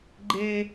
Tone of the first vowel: high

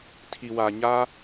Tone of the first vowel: low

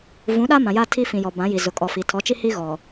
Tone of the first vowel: rising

